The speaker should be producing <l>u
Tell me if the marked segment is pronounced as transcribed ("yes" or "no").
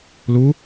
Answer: yes